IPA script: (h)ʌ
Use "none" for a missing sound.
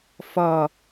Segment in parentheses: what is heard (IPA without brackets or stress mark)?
f